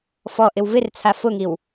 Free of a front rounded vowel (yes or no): yes